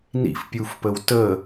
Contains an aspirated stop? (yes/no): no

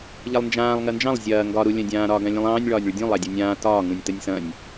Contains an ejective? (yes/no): no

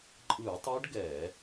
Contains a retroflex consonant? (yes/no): yes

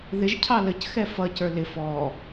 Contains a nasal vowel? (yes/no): no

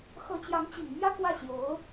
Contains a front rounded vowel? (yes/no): no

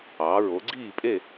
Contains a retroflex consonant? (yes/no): no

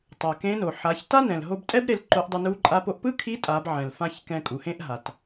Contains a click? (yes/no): yes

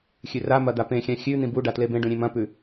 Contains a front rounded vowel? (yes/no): no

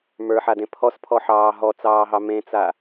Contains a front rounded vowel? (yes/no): no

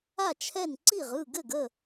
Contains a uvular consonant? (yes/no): yes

